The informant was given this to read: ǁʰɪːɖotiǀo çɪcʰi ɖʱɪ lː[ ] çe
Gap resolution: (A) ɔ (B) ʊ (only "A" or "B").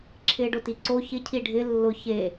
B